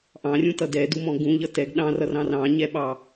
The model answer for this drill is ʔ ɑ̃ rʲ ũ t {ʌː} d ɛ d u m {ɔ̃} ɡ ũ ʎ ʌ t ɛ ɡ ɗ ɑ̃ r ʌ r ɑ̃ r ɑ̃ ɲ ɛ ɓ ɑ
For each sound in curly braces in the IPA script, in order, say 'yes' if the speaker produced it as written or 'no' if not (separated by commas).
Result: no, yes